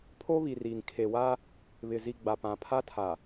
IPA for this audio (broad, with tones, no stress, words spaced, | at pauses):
pʰo˦βi˨riː˨ŋ kʰe˨wa˦ | βɪ˨ zi˨ ɡ͡ba˨pã˨pʰa˦ tʰa˨